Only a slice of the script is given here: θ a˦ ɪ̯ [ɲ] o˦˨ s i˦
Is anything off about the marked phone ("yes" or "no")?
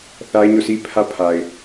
no